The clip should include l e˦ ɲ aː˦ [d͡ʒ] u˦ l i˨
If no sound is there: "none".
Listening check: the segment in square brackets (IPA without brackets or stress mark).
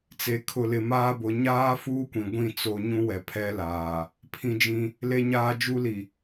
d͡ʒ